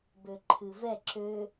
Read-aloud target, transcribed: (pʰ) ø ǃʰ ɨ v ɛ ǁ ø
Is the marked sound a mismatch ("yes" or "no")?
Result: yes